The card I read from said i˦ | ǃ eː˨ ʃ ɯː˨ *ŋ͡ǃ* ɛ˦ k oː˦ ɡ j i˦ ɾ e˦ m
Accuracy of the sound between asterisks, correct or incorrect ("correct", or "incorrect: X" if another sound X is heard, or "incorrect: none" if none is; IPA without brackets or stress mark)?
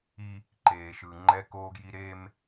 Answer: correct